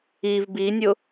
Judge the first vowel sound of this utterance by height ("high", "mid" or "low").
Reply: high